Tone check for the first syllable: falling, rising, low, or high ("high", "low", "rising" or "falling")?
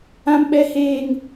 high